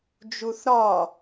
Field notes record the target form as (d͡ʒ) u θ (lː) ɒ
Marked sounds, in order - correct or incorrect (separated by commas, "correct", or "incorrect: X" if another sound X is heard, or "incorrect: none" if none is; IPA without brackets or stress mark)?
correct, incorrect: ɾ